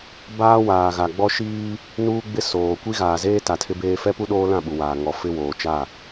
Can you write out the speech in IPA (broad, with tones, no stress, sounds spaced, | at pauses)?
b aː˦ w aː˨ ɣ a˨ ɡ͡b ɔ˦ ʃ iː˦ | n uː˦ ɡ͡b ɪ˦ s oː˨ kʷ i˦ ɣ aː˨ z eː˦ t a˨ tʰ ɪ˦ b eː˦ f ɛ˦ p u˦ ɗ oː˦ l ã˦˨ ɓ u˨ w aː˨ ŋ ɔ˨ f ɪ˦ w oː˨ t͡ʃ a˦˨